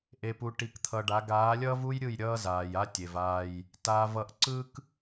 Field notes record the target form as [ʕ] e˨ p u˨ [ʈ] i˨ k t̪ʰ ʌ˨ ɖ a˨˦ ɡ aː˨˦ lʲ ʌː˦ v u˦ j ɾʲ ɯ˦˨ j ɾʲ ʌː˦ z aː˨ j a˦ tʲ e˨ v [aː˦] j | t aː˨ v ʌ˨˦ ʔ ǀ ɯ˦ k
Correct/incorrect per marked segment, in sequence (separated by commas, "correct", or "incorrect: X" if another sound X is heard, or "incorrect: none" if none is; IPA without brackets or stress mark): incorrect: ʔ, correct, correct